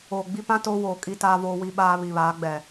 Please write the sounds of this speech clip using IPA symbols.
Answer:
oː˨ ɡ͡b i˦ p ã˦ t oː˦ w oː˨ kʼ i˦ t aː˦ v oː˦ w i˦ ɓ aː˦ β i˨ β aː˨˦ ɡ͡b ɛ˨

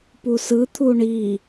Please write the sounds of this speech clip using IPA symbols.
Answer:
p u s ɯ t̪ʰ u ɳ i

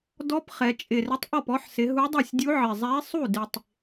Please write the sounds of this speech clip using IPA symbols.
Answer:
d ɔ˧˥ p χ ɛ˩˧ t͡ʃʼ ɪ˨˩ r ɪ˧˥ tˤ ʔ ɔ˥˩ p ɔ˧˥ ħ s ɪ˩˧ ɦ u˧˥ dˤ ɛ˥˩ sʲ dʲ u˧˥ ʕ ɪ˨˩ zˤ ɛ˧˥ i̯ sˤ u˥˩ d ɪ˨˩ tˤ

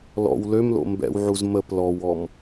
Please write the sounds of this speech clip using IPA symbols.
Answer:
l ɔ̰ w l ø m l o̰ m b ɛ̰ w ʕ u z m ə p l ɔ w ɔ m

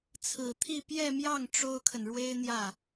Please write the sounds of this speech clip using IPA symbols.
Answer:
t͡sʰ ɹ̩˨˩ t̪ʰ i˥˧ p j ɛ˥˧ m j ɑ˥˩ ŋ ʈ͡ʂ o˥ ʊ̯ kʰ ə˨ n ɻ w e˥ ɪ̯ n̪ j ä˥˩

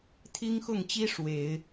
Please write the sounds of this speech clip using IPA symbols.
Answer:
t̪ʰ i˥ ŋ x ʊ˥˩ ŋ t͡ɕ i˥ ʂ w e˨˩˦ ɪ̯

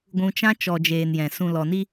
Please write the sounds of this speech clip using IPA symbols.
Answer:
ɡʷ ũ˧ t͡ʃ ã˦ t͡ʃ ɔ˨ d͡ʒ eː˨ n j ɛ̃˨ s ũ˨ l ɔ˨ n i˧

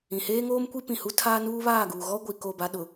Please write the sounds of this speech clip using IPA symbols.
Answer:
ĩ˨ h eː˦ ŋ oː˦ m kʷ i˦ p ĩ˨ h u˦ tʰ aː˦ n uː˦ β aː˦˨ ɡ uː˨ ɣ ɔ˦ ɡʷ i˨ k o˦˨ b a˦ ɗ ʊ˨

